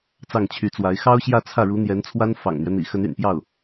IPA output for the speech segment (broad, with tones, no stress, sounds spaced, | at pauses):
t͡s ɑ˥˩ ŋ t͡ɕʰ y˧˥ t͡s w a˧˥ ɪ̯ x ɑ˥ ʊ̯ ɕ j ä˥˧ t͡sʰ ä˥˩ ɻ u˧˥ n̪ j ɛ˧˥ n t͡sʰ w a˥ n f ɑ̰˨˩ ŋ n̪ ɥ ɛ˦ n̪ ḭ˨˩ x ə˧˥ n y̰˨˩ n p j ɑ˥˩ ʊ̯